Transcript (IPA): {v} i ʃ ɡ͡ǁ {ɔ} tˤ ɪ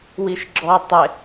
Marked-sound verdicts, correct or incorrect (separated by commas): incorrect, correct